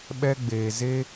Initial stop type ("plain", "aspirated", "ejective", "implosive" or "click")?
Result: implosive